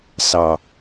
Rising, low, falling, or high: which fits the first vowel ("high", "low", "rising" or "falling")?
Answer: low